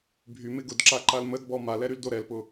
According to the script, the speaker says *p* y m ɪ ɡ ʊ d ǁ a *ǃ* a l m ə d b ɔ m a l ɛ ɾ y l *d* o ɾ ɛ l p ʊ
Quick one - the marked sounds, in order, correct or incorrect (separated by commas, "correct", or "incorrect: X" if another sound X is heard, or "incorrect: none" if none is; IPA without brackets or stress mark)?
incorrect: bʱ, correct, correct